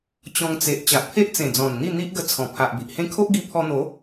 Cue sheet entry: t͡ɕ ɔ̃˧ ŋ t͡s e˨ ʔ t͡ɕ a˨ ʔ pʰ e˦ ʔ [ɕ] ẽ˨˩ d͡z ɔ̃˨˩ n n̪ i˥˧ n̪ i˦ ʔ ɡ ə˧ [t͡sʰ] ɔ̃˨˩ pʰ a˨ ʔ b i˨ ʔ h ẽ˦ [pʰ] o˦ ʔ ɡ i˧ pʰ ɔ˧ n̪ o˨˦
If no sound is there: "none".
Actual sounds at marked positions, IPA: t͡s, t͡sʰ, kʰ

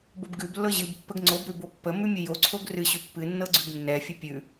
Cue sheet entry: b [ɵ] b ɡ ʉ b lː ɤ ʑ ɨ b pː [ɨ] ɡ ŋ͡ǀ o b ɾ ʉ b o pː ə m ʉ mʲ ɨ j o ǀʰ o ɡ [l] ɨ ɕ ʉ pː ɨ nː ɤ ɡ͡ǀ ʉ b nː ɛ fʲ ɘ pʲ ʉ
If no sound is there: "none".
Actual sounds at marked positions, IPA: ɤ, ə, r

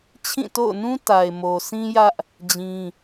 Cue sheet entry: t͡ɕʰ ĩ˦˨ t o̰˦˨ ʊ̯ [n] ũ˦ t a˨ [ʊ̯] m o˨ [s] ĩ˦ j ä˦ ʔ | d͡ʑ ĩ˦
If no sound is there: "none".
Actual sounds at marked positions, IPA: n, ɪ̯, s

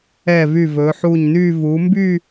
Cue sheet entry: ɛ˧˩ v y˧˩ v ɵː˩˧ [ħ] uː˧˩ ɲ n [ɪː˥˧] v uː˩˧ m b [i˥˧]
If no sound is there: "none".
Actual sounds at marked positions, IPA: ħ, yː˥˧, y˥˧

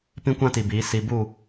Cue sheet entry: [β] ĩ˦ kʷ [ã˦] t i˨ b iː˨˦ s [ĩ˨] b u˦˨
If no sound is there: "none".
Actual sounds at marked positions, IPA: p, ã˦, i˨

